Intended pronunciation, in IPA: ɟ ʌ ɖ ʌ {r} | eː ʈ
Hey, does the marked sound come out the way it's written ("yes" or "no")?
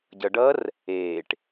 yes